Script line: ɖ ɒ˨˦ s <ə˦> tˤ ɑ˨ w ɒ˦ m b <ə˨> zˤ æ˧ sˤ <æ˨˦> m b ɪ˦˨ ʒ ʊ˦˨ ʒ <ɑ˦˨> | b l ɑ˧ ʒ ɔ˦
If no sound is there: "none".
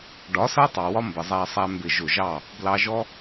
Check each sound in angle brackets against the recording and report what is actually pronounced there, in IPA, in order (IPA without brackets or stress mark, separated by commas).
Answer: ʌ˦, ə˨, æ˧, ɑ˦˨